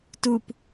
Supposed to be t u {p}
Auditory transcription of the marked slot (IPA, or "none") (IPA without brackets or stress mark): p